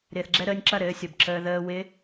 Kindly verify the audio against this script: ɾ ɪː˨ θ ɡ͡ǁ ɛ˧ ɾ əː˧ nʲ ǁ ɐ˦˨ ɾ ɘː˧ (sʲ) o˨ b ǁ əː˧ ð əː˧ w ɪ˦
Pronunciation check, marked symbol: correct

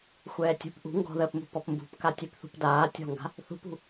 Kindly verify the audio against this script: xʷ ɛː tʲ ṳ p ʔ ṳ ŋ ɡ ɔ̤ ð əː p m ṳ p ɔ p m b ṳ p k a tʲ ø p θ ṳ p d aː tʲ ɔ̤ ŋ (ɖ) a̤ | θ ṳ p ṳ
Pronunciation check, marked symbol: incorrect: ɡ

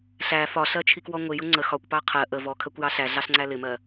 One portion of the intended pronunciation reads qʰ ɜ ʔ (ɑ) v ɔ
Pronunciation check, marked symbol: incorrect: ə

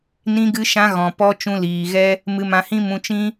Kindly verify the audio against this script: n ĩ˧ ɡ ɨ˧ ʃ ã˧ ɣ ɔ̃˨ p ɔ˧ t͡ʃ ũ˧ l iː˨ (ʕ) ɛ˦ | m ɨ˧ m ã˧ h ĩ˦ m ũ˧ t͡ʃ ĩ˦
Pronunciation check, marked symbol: incorrect: ɣ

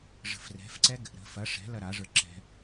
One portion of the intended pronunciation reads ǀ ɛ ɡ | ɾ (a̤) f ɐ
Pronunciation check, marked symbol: incorrect: ə̤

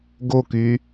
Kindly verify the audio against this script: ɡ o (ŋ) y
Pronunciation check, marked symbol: incorrect: k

